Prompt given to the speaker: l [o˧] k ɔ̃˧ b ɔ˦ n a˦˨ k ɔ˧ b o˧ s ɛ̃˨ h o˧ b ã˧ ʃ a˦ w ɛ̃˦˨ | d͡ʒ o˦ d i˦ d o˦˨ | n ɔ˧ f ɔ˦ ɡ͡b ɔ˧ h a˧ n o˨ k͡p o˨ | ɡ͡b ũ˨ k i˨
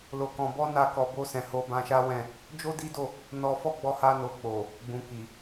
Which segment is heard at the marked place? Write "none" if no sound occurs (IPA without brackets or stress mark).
o˧